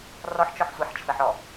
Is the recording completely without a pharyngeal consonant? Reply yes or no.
no